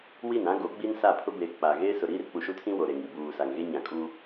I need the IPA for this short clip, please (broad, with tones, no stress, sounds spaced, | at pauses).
w i˦˨ n ã˦ ɡ o˨˦ ɡ͡b i˦ n s a˦˨ pʰ ʊ˦ b eː˨ k͡p a˨ ɣ eː˦ s ʊ˨ ɾ iː˦ r k͡p u˨ ʃ u˦ tʰ ĩ˦ w o˨ ɾ e˨ ŋ i˨ b uː˨ s a˨ ŋ ɣ e˦ ɲ ã˨ kʼ uː˦